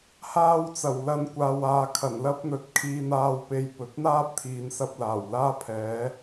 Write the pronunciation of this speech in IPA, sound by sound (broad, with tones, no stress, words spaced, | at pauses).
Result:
haː˧wt͡sɐ˨˩wlɐ˨˧n kʷaː˨waː˨ kʰɐ˨˩nlɐ˥p̚n̪ɵ˨t̚kʰiː˧ n̪aː˧wpe˧j pɵ˨t̚n̪aː˥p̚t̪ʰiː˨n sɐ˧p̚laː˨˩wlaː˥ pʰɛː˨˥